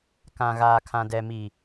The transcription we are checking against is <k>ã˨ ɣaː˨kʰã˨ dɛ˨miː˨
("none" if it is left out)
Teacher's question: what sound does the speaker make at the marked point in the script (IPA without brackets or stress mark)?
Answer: k